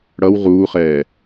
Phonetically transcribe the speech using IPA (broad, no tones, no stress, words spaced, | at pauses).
ɽʌw ʁuːχɛː